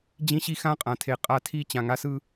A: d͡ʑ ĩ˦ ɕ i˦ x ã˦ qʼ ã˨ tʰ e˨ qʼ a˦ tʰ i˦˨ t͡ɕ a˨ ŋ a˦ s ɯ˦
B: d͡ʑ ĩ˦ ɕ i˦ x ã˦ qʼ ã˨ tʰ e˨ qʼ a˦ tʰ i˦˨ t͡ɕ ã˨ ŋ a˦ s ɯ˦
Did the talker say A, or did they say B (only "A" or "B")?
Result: B